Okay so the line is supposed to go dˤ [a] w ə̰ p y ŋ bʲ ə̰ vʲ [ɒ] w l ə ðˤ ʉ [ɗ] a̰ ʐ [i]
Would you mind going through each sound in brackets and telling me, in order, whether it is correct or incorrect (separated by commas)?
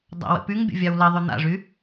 incorrect, incorrect, incorrect, incorrect